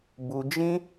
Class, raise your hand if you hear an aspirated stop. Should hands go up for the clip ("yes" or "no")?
no